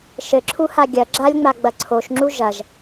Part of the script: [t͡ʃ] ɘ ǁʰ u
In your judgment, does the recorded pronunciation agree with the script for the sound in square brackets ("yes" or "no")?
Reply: no